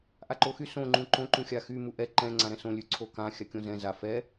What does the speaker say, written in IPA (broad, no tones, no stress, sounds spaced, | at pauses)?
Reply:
ʔ a ǃ o x y s õ ŋ͡ǃ ũ ǃ õ ǃ ũ xʲ a x y m u ʔ ɛ ǃ ɛ̃ ŋ͡ǀ ã ɾ ɛ̃ s õ lʲ ʉ ǀʰ o k ã xʲ a kʲ õ z ɛ̃ z a f ɛ